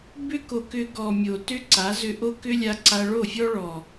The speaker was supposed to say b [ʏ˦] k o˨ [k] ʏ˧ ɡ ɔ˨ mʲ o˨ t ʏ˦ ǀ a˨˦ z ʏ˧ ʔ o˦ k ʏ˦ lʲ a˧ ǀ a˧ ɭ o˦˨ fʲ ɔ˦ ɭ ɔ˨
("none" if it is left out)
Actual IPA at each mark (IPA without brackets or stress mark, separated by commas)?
ʏ˦, k